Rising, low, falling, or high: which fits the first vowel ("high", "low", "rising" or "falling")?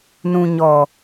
low